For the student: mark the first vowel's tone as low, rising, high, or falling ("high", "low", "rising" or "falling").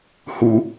low